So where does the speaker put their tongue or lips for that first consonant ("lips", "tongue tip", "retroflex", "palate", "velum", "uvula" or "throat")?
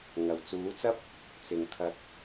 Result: velum